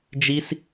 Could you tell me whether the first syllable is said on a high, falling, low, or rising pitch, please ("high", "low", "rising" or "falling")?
high